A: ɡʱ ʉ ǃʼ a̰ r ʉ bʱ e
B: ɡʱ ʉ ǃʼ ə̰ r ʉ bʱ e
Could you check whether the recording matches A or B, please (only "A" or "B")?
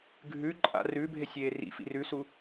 A